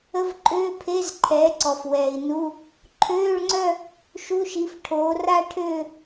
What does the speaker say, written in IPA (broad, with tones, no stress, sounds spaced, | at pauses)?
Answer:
ə˧˥˧ v ǃʼ øː˧˥˧ pʰ e˧˥˧ z ǃʰ ɛː˩˥ ǀ ɔ˩ f w ɛː˩ i̯ n u˧˥˧ | ǃʰ øː˧˥˧ ɭ ŋ͡ǀ œ˥˧ | ʃ u˧˥˧ ʃ i˩˥ f ʈʰ oː˩˥ r a˥˧ ʈʰ øː˥˧